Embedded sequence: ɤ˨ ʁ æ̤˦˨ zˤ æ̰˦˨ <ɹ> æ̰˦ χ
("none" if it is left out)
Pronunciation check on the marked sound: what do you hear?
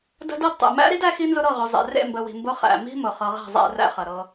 r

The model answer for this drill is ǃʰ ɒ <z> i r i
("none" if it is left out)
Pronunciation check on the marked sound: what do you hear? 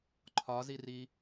z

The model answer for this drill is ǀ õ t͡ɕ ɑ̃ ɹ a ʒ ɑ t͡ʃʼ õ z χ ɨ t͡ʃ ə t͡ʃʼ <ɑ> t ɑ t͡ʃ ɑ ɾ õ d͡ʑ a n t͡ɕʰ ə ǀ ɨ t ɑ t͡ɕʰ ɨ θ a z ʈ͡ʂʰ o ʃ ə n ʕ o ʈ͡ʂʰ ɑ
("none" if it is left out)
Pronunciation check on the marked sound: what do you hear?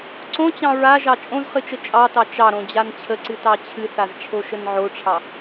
ɑ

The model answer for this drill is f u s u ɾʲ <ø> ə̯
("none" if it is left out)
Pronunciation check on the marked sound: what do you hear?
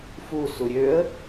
ø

